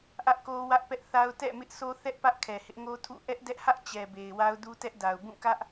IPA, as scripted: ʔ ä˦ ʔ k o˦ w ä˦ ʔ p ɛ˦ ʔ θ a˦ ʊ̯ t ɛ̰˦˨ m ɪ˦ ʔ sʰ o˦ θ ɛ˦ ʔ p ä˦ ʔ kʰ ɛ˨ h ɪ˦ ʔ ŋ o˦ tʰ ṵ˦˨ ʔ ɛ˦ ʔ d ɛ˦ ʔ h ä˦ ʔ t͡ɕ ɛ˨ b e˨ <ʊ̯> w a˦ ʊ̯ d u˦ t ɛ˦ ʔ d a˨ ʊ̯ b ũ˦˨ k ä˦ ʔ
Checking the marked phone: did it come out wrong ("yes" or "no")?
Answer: yes